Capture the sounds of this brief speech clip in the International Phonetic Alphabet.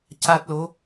c a˦˥ t̚ l o˧˥

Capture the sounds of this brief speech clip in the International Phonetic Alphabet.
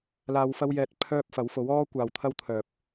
l aː˧ w f ɐ˥ w j ɛː˧ t̚ pʰ œː˥ p̚ f ɐ˨˥ w f o˨˥ w ɔː˥ kʷ aː˨ w t̪ʰ ɐ˥ w t̪ʰ œː˨ p̚

